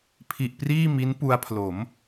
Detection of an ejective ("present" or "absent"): absent